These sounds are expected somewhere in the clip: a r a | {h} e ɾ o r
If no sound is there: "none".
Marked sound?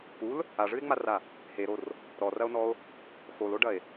h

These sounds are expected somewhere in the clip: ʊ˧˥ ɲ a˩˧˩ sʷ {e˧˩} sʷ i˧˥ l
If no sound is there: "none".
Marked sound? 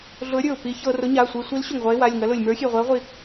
e˧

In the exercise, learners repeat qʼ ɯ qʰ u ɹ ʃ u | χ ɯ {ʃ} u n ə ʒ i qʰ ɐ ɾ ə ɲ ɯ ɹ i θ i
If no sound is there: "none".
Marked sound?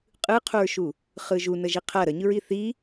ʒ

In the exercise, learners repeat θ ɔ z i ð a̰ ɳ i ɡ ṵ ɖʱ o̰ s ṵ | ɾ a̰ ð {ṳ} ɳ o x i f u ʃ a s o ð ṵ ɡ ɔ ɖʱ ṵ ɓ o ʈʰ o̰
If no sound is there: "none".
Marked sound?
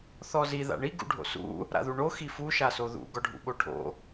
u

